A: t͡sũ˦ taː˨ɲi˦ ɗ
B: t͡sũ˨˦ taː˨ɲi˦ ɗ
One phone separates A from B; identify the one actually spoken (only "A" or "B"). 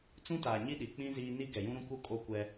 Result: A